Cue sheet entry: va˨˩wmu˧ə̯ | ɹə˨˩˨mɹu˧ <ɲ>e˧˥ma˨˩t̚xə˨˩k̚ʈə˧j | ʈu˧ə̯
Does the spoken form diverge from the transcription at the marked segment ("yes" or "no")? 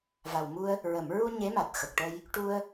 no